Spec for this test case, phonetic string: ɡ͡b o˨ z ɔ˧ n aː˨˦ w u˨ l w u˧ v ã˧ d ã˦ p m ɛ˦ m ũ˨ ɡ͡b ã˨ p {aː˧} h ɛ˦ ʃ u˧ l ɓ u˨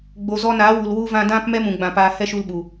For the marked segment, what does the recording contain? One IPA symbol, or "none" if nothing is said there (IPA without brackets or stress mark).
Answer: aː˧